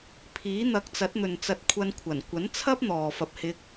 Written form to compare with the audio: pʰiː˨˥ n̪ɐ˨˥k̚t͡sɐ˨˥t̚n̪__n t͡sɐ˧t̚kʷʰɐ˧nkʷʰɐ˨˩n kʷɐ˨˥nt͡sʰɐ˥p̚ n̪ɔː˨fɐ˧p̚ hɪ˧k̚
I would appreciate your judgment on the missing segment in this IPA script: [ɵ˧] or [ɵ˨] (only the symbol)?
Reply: ɵ˨